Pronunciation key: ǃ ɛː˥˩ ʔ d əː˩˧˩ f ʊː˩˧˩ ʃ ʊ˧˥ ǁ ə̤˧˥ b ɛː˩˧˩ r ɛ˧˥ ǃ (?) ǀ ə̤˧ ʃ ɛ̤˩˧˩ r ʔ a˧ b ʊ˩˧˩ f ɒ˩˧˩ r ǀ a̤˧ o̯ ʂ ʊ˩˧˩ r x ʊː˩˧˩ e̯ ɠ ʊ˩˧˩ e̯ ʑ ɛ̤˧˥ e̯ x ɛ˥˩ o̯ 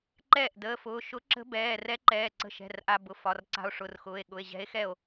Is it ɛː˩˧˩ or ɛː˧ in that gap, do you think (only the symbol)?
ɛː˩˧˩